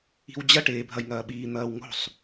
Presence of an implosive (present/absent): present